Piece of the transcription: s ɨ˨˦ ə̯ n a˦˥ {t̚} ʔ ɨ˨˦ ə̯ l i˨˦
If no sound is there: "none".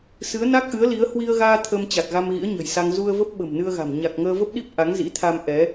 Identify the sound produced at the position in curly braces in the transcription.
k̚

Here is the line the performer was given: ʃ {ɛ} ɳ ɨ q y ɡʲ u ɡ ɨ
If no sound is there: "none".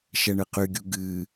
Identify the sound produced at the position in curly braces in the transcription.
ɛ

